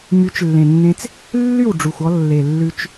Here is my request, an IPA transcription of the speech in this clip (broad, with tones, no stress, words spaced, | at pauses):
my˩˥t͡ʃlːẽ˩nːẽ˧t͡s | lːy˥˩wɖ͡ʐu˩xʷɔ˧ lːe˩lːʉ˧t͡ʃ